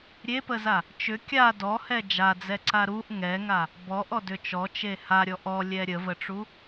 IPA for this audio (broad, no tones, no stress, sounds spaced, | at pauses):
ɾʲ e p ə z a | t͡ʃ ʏ kʲ a d ɔ h ɛ d͡ʒ a d͡z ɛ ǀ a ɾ u ʔ ŋ ɛ ŋ a | b ɔ ʔ ɔ d ʏ t͡ʃ ɔ t͡ʃ e h a ɾʲ ɔ ʔ ɔ lʲ ɛ ɾʲ ə v ə ʈ͡ʂ u